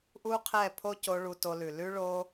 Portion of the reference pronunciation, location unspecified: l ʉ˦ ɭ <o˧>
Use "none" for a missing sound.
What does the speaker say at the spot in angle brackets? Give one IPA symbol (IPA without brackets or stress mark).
o˧